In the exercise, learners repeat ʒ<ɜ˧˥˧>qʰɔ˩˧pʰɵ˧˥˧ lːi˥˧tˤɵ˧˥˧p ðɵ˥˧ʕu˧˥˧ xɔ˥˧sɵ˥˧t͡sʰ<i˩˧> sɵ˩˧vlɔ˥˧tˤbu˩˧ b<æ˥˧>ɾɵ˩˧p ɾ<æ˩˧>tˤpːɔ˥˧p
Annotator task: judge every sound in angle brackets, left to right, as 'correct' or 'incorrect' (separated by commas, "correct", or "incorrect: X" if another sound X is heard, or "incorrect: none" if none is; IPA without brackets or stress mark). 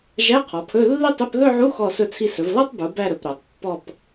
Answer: incorrect: æ˧˥˧, incorrect: i˥˧, correct, correct